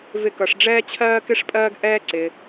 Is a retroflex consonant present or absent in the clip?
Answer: present